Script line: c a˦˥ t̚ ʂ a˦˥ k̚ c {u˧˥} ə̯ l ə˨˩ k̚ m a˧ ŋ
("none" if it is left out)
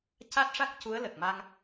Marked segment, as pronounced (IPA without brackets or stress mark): u˧˥